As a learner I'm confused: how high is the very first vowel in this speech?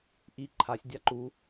high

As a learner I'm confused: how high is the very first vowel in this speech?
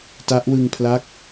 low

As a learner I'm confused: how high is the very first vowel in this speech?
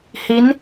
high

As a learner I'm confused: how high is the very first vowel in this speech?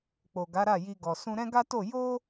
mid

